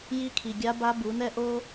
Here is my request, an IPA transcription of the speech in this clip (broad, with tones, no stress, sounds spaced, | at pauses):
j i˧˥ kʰ i˩ ɡʲ a˧˥ b a˧˥ b u˩˧ n ɛ˥ ʔ o˥